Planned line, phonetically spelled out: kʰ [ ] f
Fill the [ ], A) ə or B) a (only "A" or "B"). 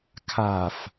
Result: B